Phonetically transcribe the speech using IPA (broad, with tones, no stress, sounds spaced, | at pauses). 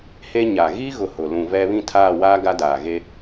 h e˦ ɲ a˨ ɣ i˦ ɣ ʊ˨ h ʊ˨ l ũ˨ v ɛ˦ β ĩ˦˨ tʰ aː˦˨ w aː˦ ɡ a˦ d aː˨ ɣ e˦